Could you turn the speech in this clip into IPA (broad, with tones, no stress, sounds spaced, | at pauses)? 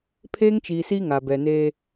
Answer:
pʰ eː˦ ŋ t͡ʃ iː˨ s i˦ ŋ a˨ b ɛ˨ n eː˦